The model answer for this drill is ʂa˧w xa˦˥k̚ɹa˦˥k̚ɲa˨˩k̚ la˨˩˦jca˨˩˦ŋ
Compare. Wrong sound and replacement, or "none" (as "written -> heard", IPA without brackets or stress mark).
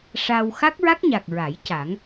l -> ɹ